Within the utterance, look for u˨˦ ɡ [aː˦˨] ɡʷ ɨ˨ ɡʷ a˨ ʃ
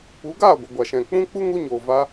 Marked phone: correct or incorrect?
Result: correct